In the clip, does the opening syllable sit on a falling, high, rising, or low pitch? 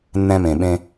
high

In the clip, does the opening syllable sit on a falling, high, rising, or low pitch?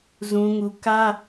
high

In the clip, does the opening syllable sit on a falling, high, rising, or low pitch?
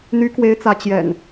rising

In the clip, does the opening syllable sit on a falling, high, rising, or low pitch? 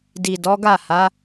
low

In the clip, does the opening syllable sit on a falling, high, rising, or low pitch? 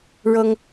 high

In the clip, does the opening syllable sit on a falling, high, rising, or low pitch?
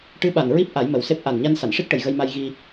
rising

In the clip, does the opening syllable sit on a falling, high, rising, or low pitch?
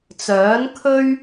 rising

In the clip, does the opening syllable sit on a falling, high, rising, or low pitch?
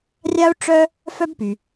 high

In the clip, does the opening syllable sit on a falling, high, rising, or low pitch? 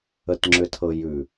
low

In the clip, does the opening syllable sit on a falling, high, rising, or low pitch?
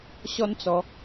high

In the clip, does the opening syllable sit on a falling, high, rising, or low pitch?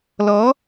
rising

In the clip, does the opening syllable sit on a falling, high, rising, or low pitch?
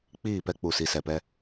falling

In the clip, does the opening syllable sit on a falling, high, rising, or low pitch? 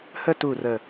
falling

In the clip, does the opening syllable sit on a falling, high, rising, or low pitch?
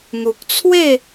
low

